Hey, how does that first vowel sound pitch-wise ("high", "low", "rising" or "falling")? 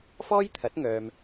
high